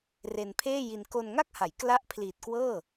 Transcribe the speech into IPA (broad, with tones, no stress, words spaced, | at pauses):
re˧npʰeː˥˩ji˧n ko˧nŋa˥˩k̚ha˩˦jkla˦˥ʔ pʰliː˨˩t̚kwɤː˥˩